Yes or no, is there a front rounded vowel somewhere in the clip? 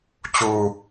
no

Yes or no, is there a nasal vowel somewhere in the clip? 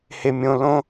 yes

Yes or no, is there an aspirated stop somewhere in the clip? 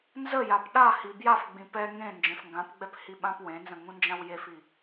no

